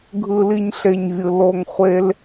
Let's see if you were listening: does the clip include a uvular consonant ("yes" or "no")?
yes